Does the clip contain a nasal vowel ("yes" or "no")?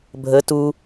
no